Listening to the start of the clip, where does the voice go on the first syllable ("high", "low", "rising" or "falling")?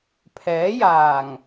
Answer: rising